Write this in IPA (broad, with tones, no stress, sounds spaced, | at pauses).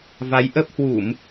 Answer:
v a˨˦ j ʔ ə˦˥ p̚ h w u˧˩˨ m